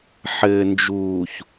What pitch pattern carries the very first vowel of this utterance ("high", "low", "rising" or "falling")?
low